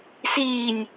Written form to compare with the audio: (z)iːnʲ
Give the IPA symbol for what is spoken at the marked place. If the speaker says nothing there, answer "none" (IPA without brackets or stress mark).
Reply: s